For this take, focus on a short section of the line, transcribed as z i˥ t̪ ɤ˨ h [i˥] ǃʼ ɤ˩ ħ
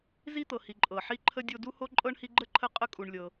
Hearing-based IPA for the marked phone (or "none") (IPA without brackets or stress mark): i˨